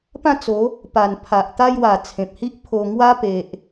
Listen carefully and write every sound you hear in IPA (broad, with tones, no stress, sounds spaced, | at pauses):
p ã˥˧ t͡s o˨˦ | p a˨˩ n pʰ a˨ ʔ t̪ a˧ j w a˨˩ t͡sʰ ẽ˨ p̚ h i˦ ʔ pʰ o˧ ŋ w a˦ p e˨ ʔ